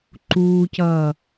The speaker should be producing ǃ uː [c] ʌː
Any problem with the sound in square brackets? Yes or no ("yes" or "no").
no